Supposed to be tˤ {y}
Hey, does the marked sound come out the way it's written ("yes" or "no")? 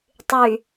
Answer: yes